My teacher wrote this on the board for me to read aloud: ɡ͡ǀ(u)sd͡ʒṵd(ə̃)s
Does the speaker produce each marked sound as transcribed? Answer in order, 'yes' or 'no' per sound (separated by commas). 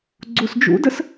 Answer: yes, no